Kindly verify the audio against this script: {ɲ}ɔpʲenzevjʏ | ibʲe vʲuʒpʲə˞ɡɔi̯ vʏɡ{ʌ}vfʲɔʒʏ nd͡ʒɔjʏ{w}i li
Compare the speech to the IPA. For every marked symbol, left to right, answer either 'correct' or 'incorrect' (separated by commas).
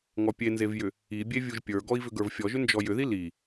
incorrect, incorrect, incorrect